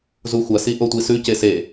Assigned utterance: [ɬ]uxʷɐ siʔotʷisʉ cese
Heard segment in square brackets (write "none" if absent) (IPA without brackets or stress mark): z